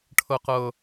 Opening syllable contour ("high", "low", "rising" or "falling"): high